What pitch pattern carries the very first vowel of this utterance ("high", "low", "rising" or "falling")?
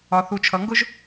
low